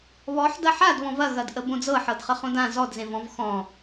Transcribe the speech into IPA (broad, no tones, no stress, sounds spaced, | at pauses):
β ɔ ħ d ɐ ħ a d β ɔ̃ v ɐ ɣ ɐ d ʔ ə b õ d͡z ɤ ħ ɤ d χ ə χ õ d ã z ɔ d z ẽ v ɔ̃ v x ɔ̃